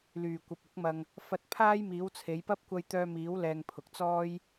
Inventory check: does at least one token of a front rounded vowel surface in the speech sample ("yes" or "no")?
yes